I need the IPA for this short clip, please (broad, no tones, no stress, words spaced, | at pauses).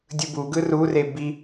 dʲɯbuɡɯ rure bi